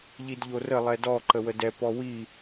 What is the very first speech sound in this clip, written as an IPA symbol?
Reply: ʎ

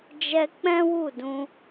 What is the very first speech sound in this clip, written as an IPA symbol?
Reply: d͡ʒ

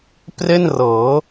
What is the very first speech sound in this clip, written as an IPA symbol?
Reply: p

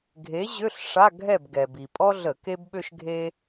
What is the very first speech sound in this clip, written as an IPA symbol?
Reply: ɡʱ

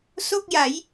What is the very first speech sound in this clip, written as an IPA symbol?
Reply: s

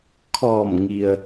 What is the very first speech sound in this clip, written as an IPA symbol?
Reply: kʰ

